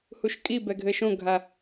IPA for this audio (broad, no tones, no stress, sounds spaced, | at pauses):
h u ʃ kʼ i b ɛ ɡʱ ɘ ʃ õ ɡʱ a